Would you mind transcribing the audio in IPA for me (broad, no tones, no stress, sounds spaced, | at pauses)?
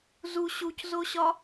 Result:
z u ɕ u c z o ɕ ɒ